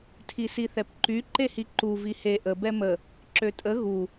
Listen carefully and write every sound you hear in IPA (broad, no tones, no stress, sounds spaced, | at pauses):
tʰ i s i θ ɛ p ǃ y ǃ e h i ǃ u v i h e ʔ ə b ɛ m ə | ǁ ø tʼ ə ɣ u